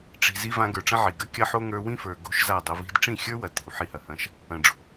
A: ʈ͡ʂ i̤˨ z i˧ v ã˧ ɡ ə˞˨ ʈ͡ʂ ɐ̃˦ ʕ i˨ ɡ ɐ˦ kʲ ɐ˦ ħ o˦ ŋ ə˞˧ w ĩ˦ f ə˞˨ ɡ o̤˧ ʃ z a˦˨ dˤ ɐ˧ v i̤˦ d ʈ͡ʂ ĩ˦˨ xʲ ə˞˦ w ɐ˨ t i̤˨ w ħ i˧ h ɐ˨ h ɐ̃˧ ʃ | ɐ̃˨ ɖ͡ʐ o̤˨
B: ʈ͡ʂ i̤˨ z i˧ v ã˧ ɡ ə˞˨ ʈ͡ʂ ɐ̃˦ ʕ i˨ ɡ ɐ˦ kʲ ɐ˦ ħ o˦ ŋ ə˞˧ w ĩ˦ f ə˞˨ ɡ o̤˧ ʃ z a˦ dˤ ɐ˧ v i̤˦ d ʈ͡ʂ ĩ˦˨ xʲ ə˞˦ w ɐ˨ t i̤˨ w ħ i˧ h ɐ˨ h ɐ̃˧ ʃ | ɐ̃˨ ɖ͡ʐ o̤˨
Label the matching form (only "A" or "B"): A